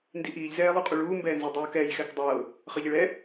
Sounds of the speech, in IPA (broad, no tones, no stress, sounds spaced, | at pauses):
n d i ʔ iː ʎ z ɛː lˠ u qʼ u ɭ uː m b ɛː n z i dˤ uː k ɛː j x ɛ k dˤ ɤː | χ ɤ ʎ i ɭ ɛ